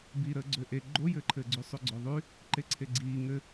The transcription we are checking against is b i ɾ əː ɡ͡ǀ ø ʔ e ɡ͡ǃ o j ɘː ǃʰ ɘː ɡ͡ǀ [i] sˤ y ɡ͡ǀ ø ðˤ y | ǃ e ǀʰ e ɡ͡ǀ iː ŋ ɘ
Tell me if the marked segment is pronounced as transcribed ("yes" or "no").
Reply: no